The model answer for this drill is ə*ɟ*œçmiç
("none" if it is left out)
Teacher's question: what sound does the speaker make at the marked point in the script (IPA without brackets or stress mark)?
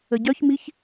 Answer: ɟ